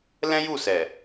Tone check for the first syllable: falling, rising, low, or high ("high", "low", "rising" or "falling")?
high